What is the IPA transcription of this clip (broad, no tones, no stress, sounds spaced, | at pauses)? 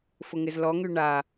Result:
f ʊ ŋ ɪ z l ɔ ŋ y ɳ a